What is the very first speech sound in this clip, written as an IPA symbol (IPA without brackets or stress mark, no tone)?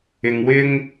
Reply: ɪ